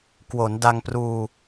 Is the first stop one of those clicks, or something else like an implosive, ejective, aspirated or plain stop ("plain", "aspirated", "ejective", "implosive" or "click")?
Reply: plain